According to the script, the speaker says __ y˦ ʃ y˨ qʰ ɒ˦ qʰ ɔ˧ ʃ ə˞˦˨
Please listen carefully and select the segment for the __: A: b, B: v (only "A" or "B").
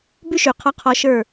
A